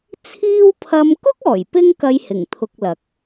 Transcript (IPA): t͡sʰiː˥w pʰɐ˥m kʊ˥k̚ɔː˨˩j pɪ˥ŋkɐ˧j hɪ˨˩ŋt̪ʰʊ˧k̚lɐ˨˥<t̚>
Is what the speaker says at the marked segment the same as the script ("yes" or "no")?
no